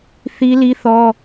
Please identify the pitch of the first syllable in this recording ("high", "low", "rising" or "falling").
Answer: high